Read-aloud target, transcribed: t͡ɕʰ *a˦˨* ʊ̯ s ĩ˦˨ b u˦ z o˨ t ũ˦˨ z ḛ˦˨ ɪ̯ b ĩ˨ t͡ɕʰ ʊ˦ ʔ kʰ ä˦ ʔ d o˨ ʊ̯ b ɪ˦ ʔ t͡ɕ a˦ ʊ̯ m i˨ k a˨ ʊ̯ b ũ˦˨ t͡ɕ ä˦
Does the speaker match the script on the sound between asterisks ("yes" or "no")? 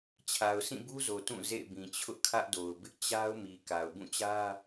no